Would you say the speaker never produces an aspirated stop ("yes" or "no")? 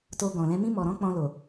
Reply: yes